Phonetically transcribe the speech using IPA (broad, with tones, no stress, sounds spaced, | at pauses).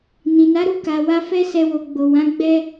n ĩ˨ n a˨˦ ɾ u˦˨ k a˨ w a˧ f ɛ˦ s ɛ˧ w o˨ ɡ͡b o˨ w ã˨˦ ɡ͡b ɛ˦